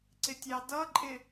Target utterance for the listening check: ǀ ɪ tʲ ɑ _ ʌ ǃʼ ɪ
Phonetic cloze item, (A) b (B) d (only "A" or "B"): B